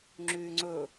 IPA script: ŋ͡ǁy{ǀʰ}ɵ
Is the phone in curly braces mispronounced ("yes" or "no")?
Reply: yes